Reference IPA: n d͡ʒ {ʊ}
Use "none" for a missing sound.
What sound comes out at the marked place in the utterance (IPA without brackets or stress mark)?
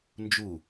u